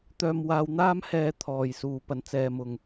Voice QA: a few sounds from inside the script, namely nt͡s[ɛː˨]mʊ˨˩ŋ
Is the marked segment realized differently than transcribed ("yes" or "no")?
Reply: no